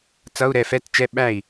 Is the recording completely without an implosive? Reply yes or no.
no